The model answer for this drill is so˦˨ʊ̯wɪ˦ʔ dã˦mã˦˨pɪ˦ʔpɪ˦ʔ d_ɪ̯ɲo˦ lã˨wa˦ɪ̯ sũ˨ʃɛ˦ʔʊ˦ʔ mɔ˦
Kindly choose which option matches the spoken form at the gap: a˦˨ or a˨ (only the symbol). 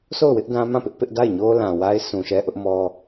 a˦˨